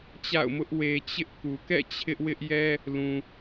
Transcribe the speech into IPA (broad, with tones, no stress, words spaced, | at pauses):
t͡ɕa̰˦˨ʊ̯mʊ˦ʔ we˦ t͡ɕɪ˦ʔku˨ kɛ̰˦˨ t͡ɕʰɪ˦ʔwɪ˦ʔjɛ˦ | lũ˨